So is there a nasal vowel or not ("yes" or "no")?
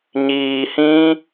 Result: yes